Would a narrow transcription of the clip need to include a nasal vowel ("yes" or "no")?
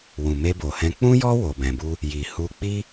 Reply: yes